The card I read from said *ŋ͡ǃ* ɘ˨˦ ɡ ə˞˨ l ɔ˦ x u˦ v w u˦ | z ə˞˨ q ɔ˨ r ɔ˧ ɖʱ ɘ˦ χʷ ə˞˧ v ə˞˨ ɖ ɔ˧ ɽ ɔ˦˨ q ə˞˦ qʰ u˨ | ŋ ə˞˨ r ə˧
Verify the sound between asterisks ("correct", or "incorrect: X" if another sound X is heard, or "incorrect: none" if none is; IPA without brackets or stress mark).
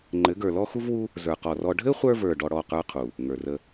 correct